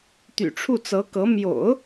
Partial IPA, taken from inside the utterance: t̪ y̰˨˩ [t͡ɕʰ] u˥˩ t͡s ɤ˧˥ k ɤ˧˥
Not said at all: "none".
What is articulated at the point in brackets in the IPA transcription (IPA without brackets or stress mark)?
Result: ʈ͡ʂʰ